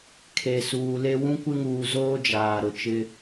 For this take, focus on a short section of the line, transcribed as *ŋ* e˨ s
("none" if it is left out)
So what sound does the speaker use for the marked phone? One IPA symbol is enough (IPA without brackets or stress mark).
kʰ